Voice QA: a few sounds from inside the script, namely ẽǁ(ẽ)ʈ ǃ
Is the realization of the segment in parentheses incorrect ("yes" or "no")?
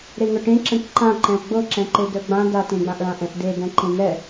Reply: yes